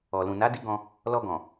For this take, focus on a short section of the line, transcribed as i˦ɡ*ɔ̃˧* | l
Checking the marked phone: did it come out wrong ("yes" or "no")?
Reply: no